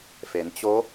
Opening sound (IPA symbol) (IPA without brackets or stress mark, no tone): f